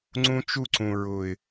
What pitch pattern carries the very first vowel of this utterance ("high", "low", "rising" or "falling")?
high